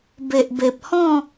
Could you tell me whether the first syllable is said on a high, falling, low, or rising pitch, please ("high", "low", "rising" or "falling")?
low